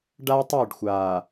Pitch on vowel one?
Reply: high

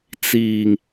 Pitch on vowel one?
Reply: low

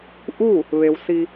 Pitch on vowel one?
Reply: falling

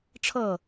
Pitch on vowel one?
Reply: falling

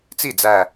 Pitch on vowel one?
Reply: falling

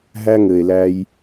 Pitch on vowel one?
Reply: high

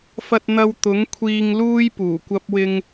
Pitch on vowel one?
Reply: high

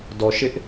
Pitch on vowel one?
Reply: low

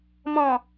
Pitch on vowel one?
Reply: low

